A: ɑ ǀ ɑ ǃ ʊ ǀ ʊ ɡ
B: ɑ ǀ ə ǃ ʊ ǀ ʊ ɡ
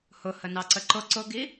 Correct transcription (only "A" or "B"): B